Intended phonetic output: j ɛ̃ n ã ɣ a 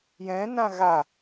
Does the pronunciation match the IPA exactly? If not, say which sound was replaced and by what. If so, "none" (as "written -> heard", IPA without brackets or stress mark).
none